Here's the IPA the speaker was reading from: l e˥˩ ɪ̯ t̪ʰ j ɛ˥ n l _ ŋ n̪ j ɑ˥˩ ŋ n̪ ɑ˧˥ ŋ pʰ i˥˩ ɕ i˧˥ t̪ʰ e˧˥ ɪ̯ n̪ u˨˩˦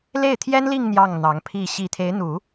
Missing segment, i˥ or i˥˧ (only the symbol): i˥˧